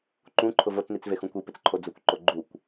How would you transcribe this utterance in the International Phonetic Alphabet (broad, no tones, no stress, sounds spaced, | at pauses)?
ǃ ũ ǃʰ ʊ v o t͡s n i t͡s v e x ũ kʷ i p ɪ t͡s ǃʰ o d͡z ʊ kʷ ǃ o ɡ͡ǃ u kʷ